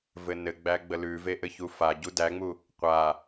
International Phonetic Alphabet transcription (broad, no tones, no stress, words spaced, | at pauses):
vɘnɘɡ͡bæ ɡ͡bəlʉve ʔɘçufaɟu dæŋ͡mu | qʷa